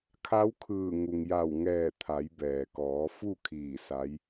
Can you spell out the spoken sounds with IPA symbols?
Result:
kʰ a˧˥ w kʰ ɯː˧˩ ŋ u˩ ŋ j a˧˩ w ŋ ɛː˧˩ t̪ʰ a˩˧ j b ɛː˩ k ɔː˩˧ f u˥˨ kʰ iː˧˩ s a˧˥ j

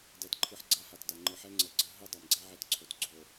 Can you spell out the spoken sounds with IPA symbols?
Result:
d ɛ˨ t ǃʰ ɯ˨ ħ ɡ͡ǀ a˦ h a˨ t d a˨ ŋ͡ǃ ɯ˨ ħ ɛ˦ ŋ͡ǀ ə˨ ɡ͡ǀ ə˦ ɦ ɯ˦ dˤ a˨ m ɡ͡ǀ æ˦ ʕ ɛ˦ t ǀʰ o˨ t ɡ͡ǀ o˨

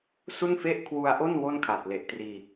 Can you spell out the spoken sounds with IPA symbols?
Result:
s u˥˩ n f e˥˩ ʔ kʰ w u˧ a̯ ʔ o˥˩ n w o˥˩ n kʰ a˨˩ t̚ l e˨˩ ʔ t r iː˧

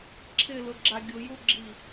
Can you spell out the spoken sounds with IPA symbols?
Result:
ǁʰ ɪ l ʊ ɡ͡ǁ a ɡʲ ʊ j u ɡ͡ǁ i

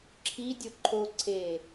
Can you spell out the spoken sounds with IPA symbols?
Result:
ǁʰ i dʲ o ǃʰ o ǀʰ e

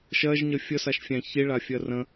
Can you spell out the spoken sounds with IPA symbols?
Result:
ʃ ɜ ʒ ɲ ə fʲ ə s a ʃ fʲ æ̃ ç i ɭ a fʲ ɜ r ə̃

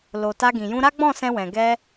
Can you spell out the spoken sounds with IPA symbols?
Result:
l o˨ t a˧ ɡ ĩ˨ j ũ˧ ɾ a˦ ɡ͡b ɔ̃˦˨ s ɛ̃˧ w ɛ̃˨ ɡ ɛ˧

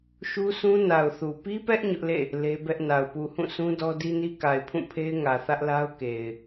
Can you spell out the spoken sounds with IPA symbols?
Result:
ʃ u˦ s ũ˦ n a˨ ʊ̯ θ u˨ p i˦ p ɛ˦ ʔ ɲ ʊ˦ ʔ l ḛ˦˨ | l e˦ b ɛ˦ ʔ n a˨ ʊ̯ p u˨ h ũ˦˨ sʰ ũ˦ d ɔ˦ d i˦ n i˦ k a˨ ɪ̯ pʰ ũ˦˨ pʰ e˦ ɪ̯ ŋ ä˨ θ ä˦ ʔ l a˦ ʊ̯ k e˨ ɪ̯

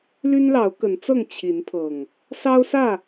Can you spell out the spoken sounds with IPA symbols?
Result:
l y˦ n l ɑ˨˦ ʊ̯ k ə˨˦ n t͡s ɤ˥˨ ŋ t͡ɕʰ i˨˦ n pʰ ɤ˨˩ ŋ | s ɑ˦ ʊ̯ s ä˥˨

